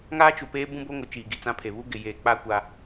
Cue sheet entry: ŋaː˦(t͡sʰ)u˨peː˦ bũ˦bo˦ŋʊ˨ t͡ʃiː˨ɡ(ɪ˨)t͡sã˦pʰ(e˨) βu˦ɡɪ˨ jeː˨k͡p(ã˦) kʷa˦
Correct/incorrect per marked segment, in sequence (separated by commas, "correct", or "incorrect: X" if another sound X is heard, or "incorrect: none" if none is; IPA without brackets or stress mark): incorrect: t͡ʃ, incorrect: i˨, correct, incorrect: a˦